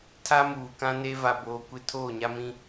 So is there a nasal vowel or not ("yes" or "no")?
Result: yes